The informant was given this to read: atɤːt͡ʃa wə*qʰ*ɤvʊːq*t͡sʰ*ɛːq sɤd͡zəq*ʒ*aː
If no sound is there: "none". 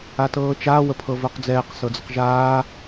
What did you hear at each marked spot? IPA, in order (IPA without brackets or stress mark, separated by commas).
pʰ, d͡z, ʒ